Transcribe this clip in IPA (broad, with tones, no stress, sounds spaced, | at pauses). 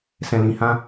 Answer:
s ɛ̃˨ l ĩ˨ h ã˧